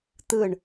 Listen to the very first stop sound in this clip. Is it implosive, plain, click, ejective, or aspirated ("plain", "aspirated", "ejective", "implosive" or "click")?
plain